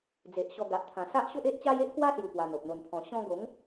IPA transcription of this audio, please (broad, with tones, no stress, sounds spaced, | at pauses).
d͡z e˨ ʔ ɕ ɔ˧ ɡ a˨ ʔ t̪ʰ ã˨˩ s a˦ ʔ ɕ o˦ ʔ e˦ ʔ t͡ɕ a˦ j e˦ ʔ k w a˦ s j u˨˩ p w a˧ n̪ o˨ p̚ n̪ o˧ n pʰ ɔ̃˧ ɕ ɔ̃˧ ɡ o˨˦ ŋ